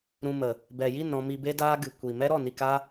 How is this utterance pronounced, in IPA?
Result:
ɾũ˧mə˨ | bɛ˨ji˦˨n ɾɔ̃˧mi˧be˦daː˦ ɡɨ˨kʷi˨ mɛ˦ɾɔ˦˨ni˧ka˦

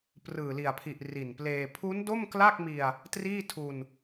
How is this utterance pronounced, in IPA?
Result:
prɯː˨˩li˨˩a̯pʰi˨˩ʔ ri˨˩npleː˧ pʰu˦˥ndo˥˩mkla˥˩k̚mi˧a̯ | triː˥˩tʰu˧n

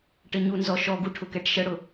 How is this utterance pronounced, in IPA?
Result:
ʈəɲunzɔ ʃɔɡu ʈʰʊkɛʈʃəɽʊ

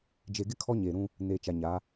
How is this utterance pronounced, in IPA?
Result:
d͡ʒe˨ ɡɪ˦ kʰɔ˦ɲeː˨ɾũ˦ | neː˨t͡ʃa˨ ɲa˨˦

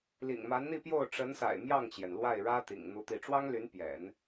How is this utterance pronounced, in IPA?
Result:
lḭ˨˩ŋma˧˥nn̪i˥˧pjo˥˩ʊ̯ ʈ͡ʂə˧˥nsa̰˨˩ɪ̯ mjɑ˥˩ŋt͡ɕjɛ˩n lwa˥˩ɪ̯ɻä˥ t̪ḭ˨˩ŋn̪u˥˧t̪i˥˩ ʈ͡ʂwɑ˥ŋly˧˥npjɛ̰˨˩˦n

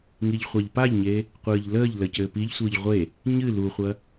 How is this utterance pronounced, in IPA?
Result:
ŋiʎχʷaʎpaʎɲe | qʷɨːʎləːʎlə cɘːpiʎsʷɨːʎ ʁʷe | ɲɨ luχʷɐ

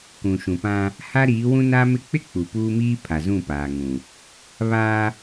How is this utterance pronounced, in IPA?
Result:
kũ˨ʃũ˨pã˦ | ha˦ɾiː˨˦wũ˦ na˦mɪ˦ k͡pɪ˦ k͡pu˨puː˦miː˦ pʰa˨zũ˦˨paː˨ŋũ˨ | βaː˦

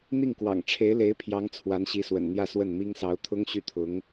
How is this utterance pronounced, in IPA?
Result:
n̪i˥˩ŋkwɑ̰˨˩ŋʈ͡ʂʰe˧˥ɪ̯le˧˥ɪ̯ pʰjɑ˧˥ŋt͡sʰwa˧˥nɕi˧˥swə̰˨˩n n̪jä˥˧swə˥˩nmi˥ŋ sɑ˧˥ʊ̯t̪ʰʊ˥ŋ ɕy˥˩t̪ʰʊ˧˥ŋ

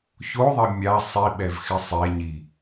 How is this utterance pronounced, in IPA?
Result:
çoðˤɪ mʲa sˤiɓɛvxɪ sˤeɲi

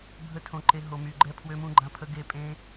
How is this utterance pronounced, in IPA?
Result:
bʱə˦˥ tʰõ˧ǃe˧ ɦo˧my˧ɡ͡ǃɛ˦˥ pʰwø˦˥mũ˦˥ɡ͡ǃã˦˥pʰə˦˥ ɡe˦˥pʼẽ˦˥

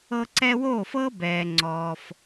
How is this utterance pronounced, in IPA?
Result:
ɤ˧ǀɛ˧woː˦˨fɤː˦ bɛː˧ŋ͡ǀɔː˧f

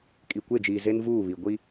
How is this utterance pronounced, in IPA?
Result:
kʼi˨kʷe˦˨d͡ʒiː˨ ze˦nvuː˦˨βi˨ ɡʷi˦

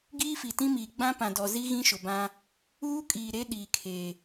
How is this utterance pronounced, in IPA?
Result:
ɡiː˦fi˨tĩ˦miː˨ ɡ͡bã˦pã˨dɔ˨zi˦ ɣĩ˦ʃʊ˨bã˦ | uː˦kʼiː˨ ɾe˦ ɗiː˨kʰeː˨

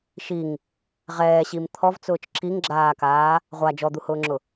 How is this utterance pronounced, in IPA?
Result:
ʃiŋ | ʁɛːɕim t̪ʰɔvt͡sʊːt͡ʃ ǁiŋɡ͡ǁaːkaː | ʁʷa d͡ʒɔd̪uhʊːŋ͡ǁʊ

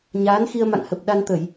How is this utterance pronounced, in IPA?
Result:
ɲaː˨˦nxi˧ə̯ ma̰˧˨ŋhə˨˩p̚ ɗa˧nt̪ə˧˩˨j

